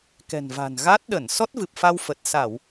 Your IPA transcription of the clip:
kɛ̤˨˩nva̤˨˩nɣa˦˥t̚ ɗə˧˩n sɔ˦˥t̚vɨ˨˩p̚fa˧w fə˨˩t̚ sa˧˩˨w

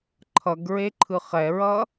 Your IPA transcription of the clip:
ǃʰʌɡɹeǃʰɯ χɛɹʌ

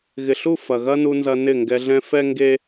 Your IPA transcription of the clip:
ɣɪ˨ɬu˦˨ fɐ˨ɣɐ˦nu˧nzɐ˧ nɪ˦˨ŋɡɛ˧ɮɛ̃˦ fɛ˦ŋɡe˦

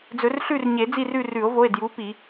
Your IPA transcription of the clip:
d͡zɵ˨˩˦r ɬʉ˦˨rɲe˨˩˦ d͡zi˦˨rʉ˦˨rʉ˨˩˦o̯vo˩˧˩e̯ dju˨˦pi˨˩˦

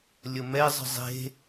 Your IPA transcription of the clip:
lʲəmɛ zˤə̤zˤe̤

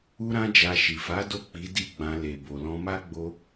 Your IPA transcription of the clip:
u˦ɾã˦d͡ʒa˧ ʃi˨fa˨˦ do˦˨ k͡pi˨˦ di˦˨ɡ͡bã˧ le˨ bo˨lɔ̃˧ma˦ ɡ͡bo˧

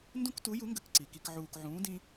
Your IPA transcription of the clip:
ndũ˥ktu˧˥ju˧˥ŋɡə˧˥k ǀi˩ki˧kʕuː˧k ʕũː˧˥dĩ˥

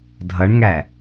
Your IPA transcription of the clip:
dʱʌɳŋæ

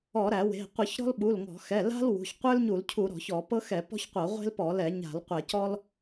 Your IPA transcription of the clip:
ɔ˧˩˧ɾæ˧˩˧we̤˩˧˩ qʷɨ˧˩˧çɾɔ̤˥l ɓu˩˧˩lŋɔ̤˧˩˧xɛ˩˧˩ la̤˥lwṳ˩˧˩ç qʷə˞˥lɲu˧˩˧lcʰu˧˩˧ ɾɔ̤˧˩˧çɔ˧˩˧ pɤ˥xɛ˧˩˧ pɔ̤˥çqʷɤ˧˩˧ʁʷe̤˥lpɔ˧˩˧ lɛ˧˩˧ɲa̤˧˩˧lqʷɛ˧˩˧ cɔ˥l

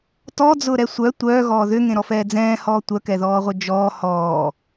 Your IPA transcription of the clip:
tɔd͡zʊːɾɛ sʷœ tʷœːɣɔː ðʏŋẽɾɔfɛː d͡zɛ̃ːhɔː tʷœkɛðɔːʁʷœ d͡ʒɔː hɔː

